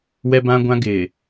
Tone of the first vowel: high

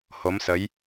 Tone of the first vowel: rising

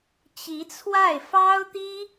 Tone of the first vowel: rising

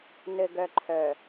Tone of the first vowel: low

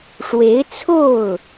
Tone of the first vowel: rising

